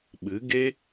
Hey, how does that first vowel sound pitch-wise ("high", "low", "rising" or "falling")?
rising